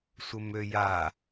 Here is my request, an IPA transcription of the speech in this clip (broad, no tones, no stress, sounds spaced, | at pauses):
sʷ ə m ø j a